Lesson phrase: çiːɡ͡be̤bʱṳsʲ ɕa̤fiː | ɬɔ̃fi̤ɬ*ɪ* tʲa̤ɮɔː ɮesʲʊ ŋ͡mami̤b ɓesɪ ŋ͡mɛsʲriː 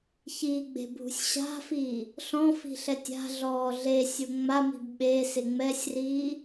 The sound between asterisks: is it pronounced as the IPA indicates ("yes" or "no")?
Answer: no